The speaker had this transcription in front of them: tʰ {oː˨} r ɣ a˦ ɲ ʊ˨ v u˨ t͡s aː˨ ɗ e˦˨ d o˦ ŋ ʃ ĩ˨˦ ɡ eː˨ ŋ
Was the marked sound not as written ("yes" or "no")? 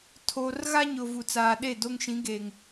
no